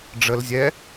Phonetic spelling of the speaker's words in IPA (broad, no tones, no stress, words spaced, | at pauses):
ɖ͡ʐəl zʲɛ